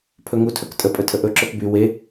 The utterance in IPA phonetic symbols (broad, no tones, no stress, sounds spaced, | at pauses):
pʰ ɵ ŋ u tʰ ɵ k tʼ ə pʼ ɵ tʰ ə ʔ ɵ ǁ ɵ k b y w e